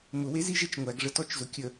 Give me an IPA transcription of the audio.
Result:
m ʊ w e z i ʒ e t͡ʃ ŋʷ æ ɡ ʐ ə t ɔ t͡ʃ z ʊ kʲ ə

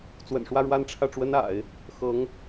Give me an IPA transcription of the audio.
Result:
t͡s w ə̰˨˩ n ʂ w ä˥˧ ɻ w a˥˧ n ʈ͡ʂʰ ä˥˩ ʈ͡ʂ w ə˥ n a̰˨˩˦ ɪ̯ | x ɤ˧˥ ŋ

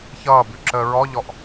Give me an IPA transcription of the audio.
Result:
ç ʌː b ʉ ǁ əː ɹ ɔ ʎ ɔ ʔ

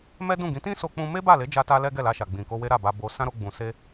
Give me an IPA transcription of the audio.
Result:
m ɛ˦ d ũ˦˨ ɡ ĩ˨˦ t ĩ˦ s o˧ k͡p ũ˧ m e˦ b a˦˨ l e˨˦ d͡ʒ a˦ t a˦ l ɛ˦ ɡ ɛ˦˨ l a˧ ʃ a˨ ɡ͡b ĩ˨ k o˧ w e˦ ɾ a˦˨ b a˧ b o˧ s ã˦ ɾ o˧ ɡ͡b ũ˨ s e˧

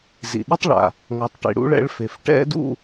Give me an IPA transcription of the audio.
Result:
z ḭ˩ ɗ i˥ tˤ ɭ a̰˩ | ŋ ʌ˩ tˤ ʈ ḭ˩ ɽ ṵ˨˦ ɭ ɛ̰˨˦ ɭ f e˩ f ʈ ɛ̰˥ d ṵ˥˧

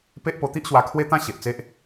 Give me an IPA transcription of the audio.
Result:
p e˦ ʔ p o˧ t̪ i˦ ʔ ɕ w a˧ kʰ w e˦ t̪ ã˦ ɕ e˨ ʔ t͡s e˦ ʔ

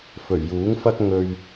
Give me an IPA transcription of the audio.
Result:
f ɵ˨˩ ɥ j uː˨˥ ŋ f ɐ˥ k̚ ŋ ɵ˧ ɥ

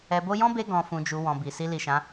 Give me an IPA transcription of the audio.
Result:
ɛ˨ b o˧ j ɔ̃˦ b e˧ ɡ ɔ̃˨ f ũ˨ d͡ʒ u˨ w ɔ̃˨ b i˨ s i˧ l i˨ ʃ ã˨˦

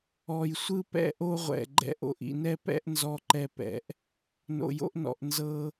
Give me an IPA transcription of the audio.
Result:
ɔ˨ j sʷ ɯ˧ p ɛ̰˧ ʔ o˧ ʁʷ ɛ̰˨ ɡ͡ǃ ɛ̰˧ ʔ o̰˨ ʔ ḭ˨ n ɛ˧ p ɛ̰˧ ʔ n z ɔ˧ ǃ ɛ˧ p ɛ̰˨ ʔ | n o̰˨ j o̰˧ ʔ n ɔ̰˨ ʔ n z ɤ˧

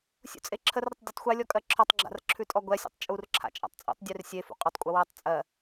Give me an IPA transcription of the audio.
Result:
sʲ ṵ t͡sʼ e ǁʰ ə r ɾ ə tˤ dʲ ɯ tˤ xʷ ɛ lʲ ɔ kʼ ɜ ǁʰ ɔ tˤ ɡ͡ǁ a̰ r ǁʰ ʉ tʼ ɔ ɡʷ ɛ sʲ ṵ tˤ t͡ʃʼ u r ǁʰ a̰ t͡ʃʼ a̰ tˤ t͡sʼ ṵ tˤ dʲ ʉ r sʲ e f ṵ qʼ ʏ tˤ kʷʼ ə w ɜ tˤ t͡sʼ ɜ

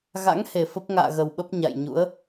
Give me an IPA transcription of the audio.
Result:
ɣ a̰˧˥ ŋ h e˨˩ f ə˦˥ p̚ ŋ a̰ː˧˨ ɣ ə˨˩ w ɓ ə˦˥ p̚ ɲ a̰˧˨ j ɲ ṵ˧˥ ə̯

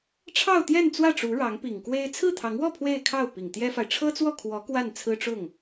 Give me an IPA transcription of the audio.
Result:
ʈ͡ʂʰ ɑ˥˧ ʊ̯ t̪ j ɛ˥˧ n t͡s w ä˥˩ ʈ͡ʂ u˧˥ ɻ ɑ˧˥ ŋ p i˨˩ ŋ k w e˥ ɪ̯ t͡sʰ ɹ̩˥˩ t̪ʰ ɑ˧˥ ŋ w ɔ˥˧ pʰ w e˥˧ ɪ̯ kʰ ɑ˥˩ ʊ̯ p i˨˩ ŋ t̪ j ɛ˥ f a˨ ɪ̯ ʈ͡ʂʰ ɤ˥ t͡s w ɔ˥˩ kʰ w ɔ˧˥ k w a˥˩ n t͡sʰ ɹ̩˥ ʈ͡ʂ ʊ˥˩ ŋ

